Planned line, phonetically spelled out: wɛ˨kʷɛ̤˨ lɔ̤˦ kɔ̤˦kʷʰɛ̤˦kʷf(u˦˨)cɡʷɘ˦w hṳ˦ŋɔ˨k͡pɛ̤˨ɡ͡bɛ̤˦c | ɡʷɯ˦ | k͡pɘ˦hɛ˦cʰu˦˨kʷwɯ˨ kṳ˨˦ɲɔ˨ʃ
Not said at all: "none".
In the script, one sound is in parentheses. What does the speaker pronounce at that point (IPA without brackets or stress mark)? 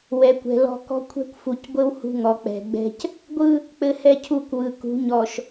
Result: u˨